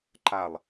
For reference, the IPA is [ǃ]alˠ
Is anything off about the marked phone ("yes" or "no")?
no